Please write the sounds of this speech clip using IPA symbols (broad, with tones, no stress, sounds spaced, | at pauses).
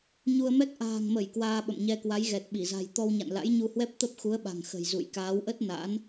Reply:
ɲ u˧ ə̯ m ɛ˦˥ k̚ ʔ a̤ː˨˩ ŋ m ə˧˩ j k w aː˧ ɓ ə̰˧˨ m ɲ ɛ˧ k w a˨˦ j ɣ ɛ˨˩ t̚ ɓ i˧˩ z a̤˨˩ j t̪ ɔ˧ w ɲ a̰˧˨ n l a̰˧˥ j ɲ u˧ h w ɛ˦˥ p̚ t̪ ə˦˥ p̚ x u˨˦ ə̯ ɓ a̤˨˩ ŋ x ə̤˨˩ j z ṵ˧˨ j k aː˨˦ w ʔ ə˦˥ t̚ n a̰˧˥ n